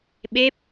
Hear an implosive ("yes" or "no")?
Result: yes